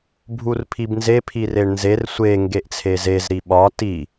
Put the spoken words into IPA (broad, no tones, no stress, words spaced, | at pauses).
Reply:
bʱurpʰibnze pʰireɳnzer sʷe ŋɡeʔt͡sʰezez ɾiɓɒ ti